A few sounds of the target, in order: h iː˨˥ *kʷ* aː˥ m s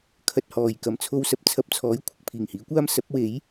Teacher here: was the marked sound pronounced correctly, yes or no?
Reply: yes